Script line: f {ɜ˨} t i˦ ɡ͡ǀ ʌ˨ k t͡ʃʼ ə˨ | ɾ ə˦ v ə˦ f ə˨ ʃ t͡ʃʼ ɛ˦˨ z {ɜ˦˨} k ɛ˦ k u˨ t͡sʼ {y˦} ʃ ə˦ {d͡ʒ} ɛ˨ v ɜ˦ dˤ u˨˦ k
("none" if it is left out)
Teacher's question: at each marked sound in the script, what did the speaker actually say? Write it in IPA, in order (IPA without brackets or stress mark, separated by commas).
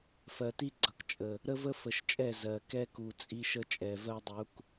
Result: ɜ˨, ɜ˨, i˦, t͡ʃʼ